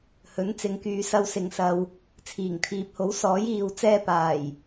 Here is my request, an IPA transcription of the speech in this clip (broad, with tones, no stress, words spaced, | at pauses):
hɵ˨˥nt͡sɪ˨˧ŋkyː˨sɐ˧w sɪ˨ŋsɐ˨w | t͡sʰiː˨˩ŋt̪ʰiː˨p̚ho˨˥w sɔː˨˥jiː˨w t͡sɛː˧paː˨˩j